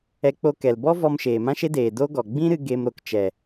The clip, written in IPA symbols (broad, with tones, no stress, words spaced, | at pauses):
ɛ˧k͡po˧kɛ˨l bɔ˦vɔ˧m ʃeː˨mã˦ʃe˦deː˨ do˦ ɡɔ˨ ɡ͡bĩ˦ɾɨ˧ ɡe˧m ɾo˨kt͡ʃɛ˨